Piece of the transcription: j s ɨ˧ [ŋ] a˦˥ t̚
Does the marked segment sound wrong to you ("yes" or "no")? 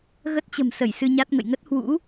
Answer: yes